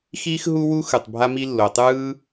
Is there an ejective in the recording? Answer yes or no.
no